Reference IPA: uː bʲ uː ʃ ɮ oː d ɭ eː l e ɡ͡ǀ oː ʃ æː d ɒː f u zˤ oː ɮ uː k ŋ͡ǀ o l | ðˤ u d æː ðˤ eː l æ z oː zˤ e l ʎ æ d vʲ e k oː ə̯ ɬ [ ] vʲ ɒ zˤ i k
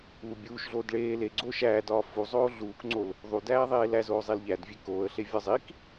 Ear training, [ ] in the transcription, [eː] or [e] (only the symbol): e